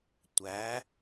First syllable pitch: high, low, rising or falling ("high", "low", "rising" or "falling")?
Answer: rising